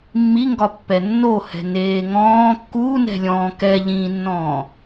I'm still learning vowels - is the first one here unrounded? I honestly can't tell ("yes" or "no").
yes